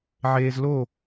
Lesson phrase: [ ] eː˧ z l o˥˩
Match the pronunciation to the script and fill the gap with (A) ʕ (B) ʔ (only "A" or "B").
A